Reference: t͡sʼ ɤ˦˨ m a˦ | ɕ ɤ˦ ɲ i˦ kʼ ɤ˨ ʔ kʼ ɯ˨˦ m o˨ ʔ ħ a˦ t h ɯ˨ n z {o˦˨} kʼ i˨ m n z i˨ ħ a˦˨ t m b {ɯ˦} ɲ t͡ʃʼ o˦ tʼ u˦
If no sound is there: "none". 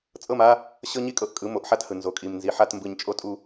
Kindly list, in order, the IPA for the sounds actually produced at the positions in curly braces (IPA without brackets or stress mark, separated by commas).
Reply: o˨, ɯ˨